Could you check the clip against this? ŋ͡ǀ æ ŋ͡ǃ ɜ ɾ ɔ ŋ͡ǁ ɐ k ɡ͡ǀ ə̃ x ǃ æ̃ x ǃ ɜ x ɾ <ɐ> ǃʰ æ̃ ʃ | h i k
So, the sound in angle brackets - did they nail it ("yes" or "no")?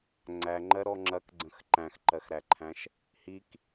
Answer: no